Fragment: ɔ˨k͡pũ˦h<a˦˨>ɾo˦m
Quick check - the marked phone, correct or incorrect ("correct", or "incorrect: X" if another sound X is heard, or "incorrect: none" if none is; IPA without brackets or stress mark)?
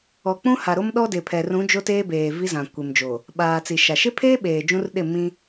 incorrect: a˨